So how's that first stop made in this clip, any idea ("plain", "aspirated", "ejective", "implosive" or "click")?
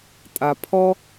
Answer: ejective